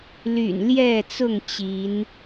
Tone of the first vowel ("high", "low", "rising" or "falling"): low